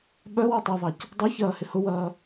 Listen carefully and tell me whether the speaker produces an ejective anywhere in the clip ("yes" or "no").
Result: no